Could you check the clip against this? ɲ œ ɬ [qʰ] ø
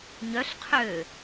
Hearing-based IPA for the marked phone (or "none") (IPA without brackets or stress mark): qʰ